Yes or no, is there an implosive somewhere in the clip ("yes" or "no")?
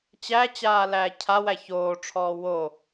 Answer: no